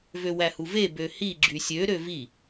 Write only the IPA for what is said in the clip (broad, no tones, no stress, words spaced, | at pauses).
vøwæhuve bøhi ɡ͡ǁysʲø ɾøvi